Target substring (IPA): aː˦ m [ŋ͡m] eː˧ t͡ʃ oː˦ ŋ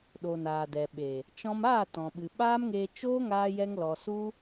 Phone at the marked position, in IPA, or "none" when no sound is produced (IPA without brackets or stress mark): ŋ